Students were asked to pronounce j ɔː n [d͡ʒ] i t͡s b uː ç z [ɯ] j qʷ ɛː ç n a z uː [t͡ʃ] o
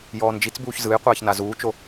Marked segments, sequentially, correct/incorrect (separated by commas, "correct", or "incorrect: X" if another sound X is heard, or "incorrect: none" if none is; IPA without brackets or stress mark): correct, correct, correct